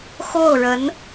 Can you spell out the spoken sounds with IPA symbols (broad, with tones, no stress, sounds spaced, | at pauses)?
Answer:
x o˥˩ ʊ̯ ɻ ə˧˥ n